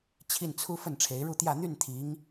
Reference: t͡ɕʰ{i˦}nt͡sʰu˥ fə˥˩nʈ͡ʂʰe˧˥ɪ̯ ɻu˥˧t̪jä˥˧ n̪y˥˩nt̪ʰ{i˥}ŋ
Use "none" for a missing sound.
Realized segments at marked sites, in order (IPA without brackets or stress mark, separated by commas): i˥˩, i˧˥